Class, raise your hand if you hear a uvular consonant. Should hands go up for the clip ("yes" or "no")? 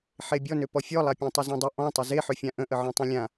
no